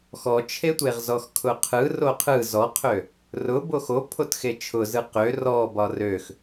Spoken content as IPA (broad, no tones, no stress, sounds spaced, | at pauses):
x ɔ t͡ʃʰ e tʷ e ʁ z ɔ x kʰ ʊ qʰ ɯ r o qʰ ɯ z ɔ qʰ ø | r ʊ b o x o pʰ o t x e t͡ʃʰ ʊ z ɯ q ø r ɔ b ɒ r ø x